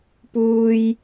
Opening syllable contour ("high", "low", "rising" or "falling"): high